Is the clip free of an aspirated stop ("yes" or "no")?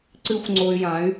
yes